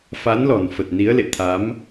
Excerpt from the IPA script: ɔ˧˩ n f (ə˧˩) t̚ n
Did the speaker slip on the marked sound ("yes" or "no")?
yes